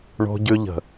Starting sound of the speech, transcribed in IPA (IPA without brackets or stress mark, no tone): ɳ